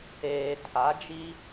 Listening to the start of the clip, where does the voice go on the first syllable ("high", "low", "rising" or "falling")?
low